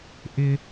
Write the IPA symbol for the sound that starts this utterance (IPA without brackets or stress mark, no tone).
ʔ